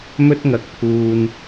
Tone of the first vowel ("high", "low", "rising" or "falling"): high